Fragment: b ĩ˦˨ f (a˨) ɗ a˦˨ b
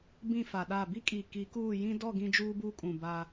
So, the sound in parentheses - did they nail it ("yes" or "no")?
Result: yes